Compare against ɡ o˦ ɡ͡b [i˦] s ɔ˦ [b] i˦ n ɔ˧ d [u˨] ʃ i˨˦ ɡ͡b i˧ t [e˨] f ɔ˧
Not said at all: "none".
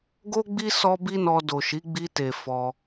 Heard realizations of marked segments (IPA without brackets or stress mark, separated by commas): i˦, b, o˨, e˨